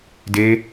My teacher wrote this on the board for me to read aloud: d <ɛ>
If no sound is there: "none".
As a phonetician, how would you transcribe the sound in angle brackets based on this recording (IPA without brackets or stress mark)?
e